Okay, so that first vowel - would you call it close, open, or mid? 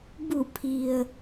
close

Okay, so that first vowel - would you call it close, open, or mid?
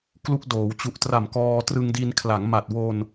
close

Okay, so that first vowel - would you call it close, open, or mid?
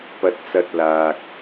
open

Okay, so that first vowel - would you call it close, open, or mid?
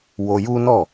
mid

